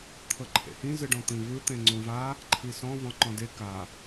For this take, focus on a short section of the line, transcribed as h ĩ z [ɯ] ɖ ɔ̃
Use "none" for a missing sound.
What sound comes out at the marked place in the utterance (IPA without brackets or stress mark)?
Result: ɯ